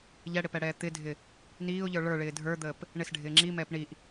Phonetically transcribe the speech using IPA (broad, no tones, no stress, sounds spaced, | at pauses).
ʎ ɛ ɽ ɪ p ɛ ɽ ɛː t̪ ɪ dʱ ɪ | n iː ʊ̯ ʎ ə˞ ɭ ə˞ ɭ ɪː dʱ ə˞ d̪ əː p | ɳ ɪ s ɖʱ ɪː ŋ͡ǁ i m ɛː p ɳ i ʔ